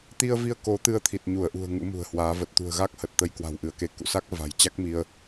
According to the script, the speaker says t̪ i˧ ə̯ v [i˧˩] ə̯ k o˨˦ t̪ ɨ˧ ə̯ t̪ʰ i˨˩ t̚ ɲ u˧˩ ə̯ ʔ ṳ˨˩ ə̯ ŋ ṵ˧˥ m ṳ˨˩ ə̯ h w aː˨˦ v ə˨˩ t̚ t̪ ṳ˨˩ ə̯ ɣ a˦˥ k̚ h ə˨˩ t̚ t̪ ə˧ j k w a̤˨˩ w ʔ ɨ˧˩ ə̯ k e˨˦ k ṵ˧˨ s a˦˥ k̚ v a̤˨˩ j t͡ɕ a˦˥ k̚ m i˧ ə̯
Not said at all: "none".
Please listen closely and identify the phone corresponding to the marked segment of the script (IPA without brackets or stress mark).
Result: i˧